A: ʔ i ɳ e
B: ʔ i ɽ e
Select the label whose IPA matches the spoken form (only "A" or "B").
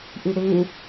B